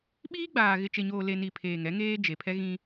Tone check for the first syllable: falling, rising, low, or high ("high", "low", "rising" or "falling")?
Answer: high